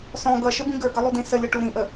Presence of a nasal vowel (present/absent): present